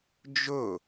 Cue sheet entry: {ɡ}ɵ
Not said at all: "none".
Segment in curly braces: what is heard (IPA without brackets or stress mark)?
d͡ʒ